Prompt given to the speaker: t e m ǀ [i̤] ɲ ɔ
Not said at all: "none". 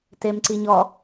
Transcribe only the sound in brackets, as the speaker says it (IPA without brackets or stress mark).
i